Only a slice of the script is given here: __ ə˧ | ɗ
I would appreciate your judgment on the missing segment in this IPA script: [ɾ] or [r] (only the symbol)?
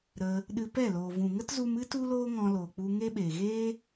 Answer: ɾ